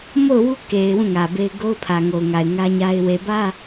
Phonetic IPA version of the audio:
m o˦˨ ʊ̯ w u˦ k e˨ ɪ̯ w ũ˦˨ ŋ ä˨ b e˦ ɪ̯ ɡ o˦ ʊ̯ pʰ ä˨ ŋ o˨ ʊ̯ ŋ a˨ ɪ̯ ŋ ä˦ ɲ a˦ ɪ̯ w e˨ b ä˦

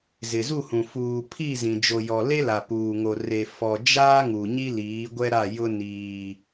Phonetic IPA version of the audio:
z ɪ˨ z u˦˨ h ũ˨ f uː˨ pʰ i˦˨ z ĩ˨ d͡ʒ o˨ j ɔ˨ l e˦ l a˨ p uː˨ ŋ o˨ r e˨ f ɔ˨ d͡ʒ aː˦ ŋ u˨ ɲ i˦ l iː˨˦ ɡʷ ɛ˦ ɾ a˦˨ j ʊ˦ n iː˦

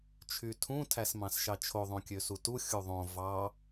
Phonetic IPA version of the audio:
t͡ʃʰ y tʰ ũ tʰ æ s m ɑ̃ s ʃ ɑ t͡ʃʰ o ðˤ õ kʲ ø s u t u xʲ u ðˤ õ v ɑ

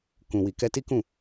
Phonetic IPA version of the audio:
k ũ˨ w i˨ k ɛ˧ t i˦ k ũ˦˨

